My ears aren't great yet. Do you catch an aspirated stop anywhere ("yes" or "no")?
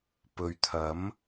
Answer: yes